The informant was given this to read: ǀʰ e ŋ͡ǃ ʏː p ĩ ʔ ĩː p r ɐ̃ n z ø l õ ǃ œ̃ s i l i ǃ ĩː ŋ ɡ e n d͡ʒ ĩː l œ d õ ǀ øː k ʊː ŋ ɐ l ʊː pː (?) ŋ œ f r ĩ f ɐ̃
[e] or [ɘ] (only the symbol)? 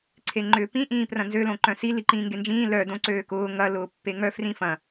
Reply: e